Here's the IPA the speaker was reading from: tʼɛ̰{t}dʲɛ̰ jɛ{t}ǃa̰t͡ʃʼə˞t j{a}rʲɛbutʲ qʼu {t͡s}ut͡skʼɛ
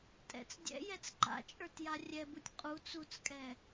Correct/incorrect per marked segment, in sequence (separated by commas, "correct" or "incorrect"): incorrect, incorrect, correct, correct